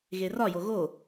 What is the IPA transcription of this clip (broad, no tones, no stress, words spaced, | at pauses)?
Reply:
ɣerɒjo ɣo